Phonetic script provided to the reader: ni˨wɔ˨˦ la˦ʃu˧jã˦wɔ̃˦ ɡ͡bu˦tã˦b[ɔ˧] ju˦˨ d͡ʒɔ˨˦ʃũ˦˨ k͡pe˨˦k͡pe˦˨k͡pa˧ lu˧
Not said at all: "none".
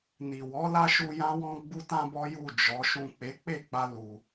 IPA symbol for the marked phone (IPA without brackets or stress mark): ɔ˦